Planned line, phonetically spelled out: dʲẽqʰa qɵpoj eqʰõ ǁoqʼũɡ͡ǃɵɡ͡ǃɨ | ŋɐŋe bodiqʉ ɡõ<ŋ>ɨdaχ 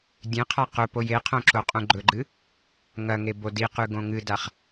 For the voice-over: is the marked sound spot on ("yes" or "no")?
yes